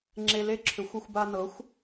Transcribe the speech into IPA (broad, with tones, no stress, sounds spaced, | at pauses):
ŋ͡ǁ e˧ l e˥ ǁʰ ʏ˩˥ xʷ ʏ˧ xʷ b a˧ n ɤ˩˥ xʷ